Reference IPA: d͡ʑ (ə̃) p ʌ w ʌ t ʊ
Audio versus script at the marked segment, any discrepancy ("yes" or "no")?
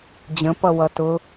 no